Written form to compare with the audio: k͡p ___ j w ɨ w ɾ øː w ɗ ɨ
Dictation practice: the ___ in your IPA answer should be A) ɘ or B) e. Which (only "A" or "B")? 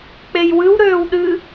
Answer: B